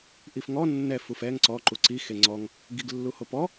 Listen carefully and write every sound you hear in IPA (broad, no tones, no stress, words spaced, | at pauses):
ʔifŋɔ nːɛ fufɛŋ ǀɔ ǃuǀi xeŋ͡ǀɔŋ | ɡiɡlːuhopɔ